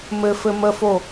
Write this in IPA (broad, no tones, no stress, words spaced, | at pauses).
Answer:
mɘfɘ məfo